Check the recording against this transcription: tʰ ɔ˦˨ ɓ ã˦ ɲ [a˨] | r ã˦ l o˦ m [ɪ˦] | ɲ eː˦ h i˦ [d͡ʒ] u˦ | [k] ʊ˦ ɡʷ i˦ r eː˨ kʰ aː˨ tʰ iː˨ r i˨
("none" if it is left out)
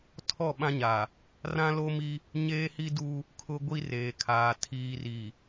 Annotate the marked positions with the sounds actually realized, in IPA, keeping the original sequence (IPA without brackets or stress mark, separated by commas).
a˨, i˦, d, kʰ